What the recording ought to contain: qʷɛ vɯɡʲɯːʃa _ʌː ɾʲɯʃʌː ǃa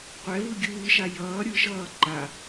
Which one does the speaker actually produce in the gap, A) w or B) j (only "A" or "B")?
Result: B